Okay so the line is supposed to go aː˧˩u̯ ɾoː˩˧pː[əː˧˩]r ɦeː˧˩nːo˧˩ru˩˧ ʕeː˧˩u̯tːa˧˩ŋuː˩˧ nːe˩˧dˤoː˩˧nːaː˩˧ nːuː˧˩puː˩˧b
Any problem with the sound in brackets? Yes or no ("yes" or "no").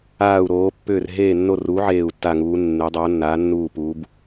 yes